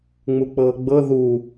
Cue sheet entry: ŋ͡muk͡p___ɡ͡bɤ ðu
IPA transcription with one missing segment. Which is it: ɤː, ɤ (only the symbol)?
ɤː